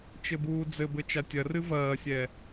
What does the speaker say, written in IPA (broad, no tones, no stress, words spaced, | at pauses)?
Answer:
t͡ʃɘbuːd͡zɘbɘ t͡ʃatʲɐrɨ vɐːsʲɛ